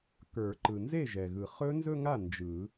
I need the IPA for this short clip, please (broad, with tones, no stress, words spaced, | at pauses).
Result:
kə˞˨˩˦ ǃɯ˩nze˥˩ʒɛ˩ɣɯ˩ χɵ˦˥ nzɵ˥˧ŋa˥˩ nd͡ʒɯ˨˩˦